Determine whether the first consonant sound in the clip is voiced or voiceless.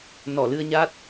voiced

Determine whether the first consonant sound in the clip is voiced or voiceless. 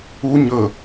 voiced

